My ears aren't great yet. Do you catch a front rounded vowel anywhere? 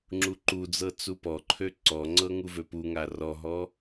yes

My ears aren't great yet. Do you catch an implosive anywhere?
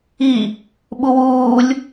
yes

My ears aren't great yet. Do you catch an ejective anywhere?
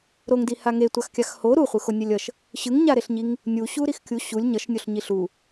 no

